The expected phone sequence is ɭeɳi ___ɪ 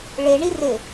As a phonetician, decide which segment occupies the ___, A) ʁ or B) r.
B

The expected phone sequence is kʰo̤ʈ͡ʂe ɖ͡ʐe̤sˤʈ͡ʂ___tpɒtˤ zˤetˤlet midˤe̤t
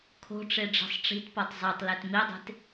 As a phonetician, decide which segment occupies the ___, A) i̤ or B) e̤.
A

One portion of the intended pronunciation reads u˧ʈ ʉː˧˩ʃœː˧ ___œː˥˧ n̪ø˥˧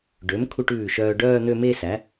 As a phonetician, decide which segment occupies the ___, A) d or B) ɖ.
B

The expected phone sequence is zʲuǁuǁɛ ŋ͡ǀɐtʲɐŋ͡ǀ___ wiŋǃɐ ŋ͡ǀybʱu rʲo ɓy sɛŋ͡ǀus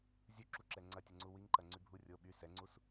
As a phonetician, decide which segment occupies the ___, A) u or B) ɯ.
A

